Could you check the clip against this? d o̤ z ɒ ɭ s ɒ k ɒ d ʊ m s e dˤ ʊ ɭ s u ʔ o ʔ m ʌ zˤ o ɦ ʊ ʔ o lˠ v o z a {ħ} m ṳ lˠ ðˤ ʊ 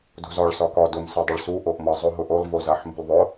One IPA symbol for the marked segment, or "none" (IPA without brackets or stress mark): ħ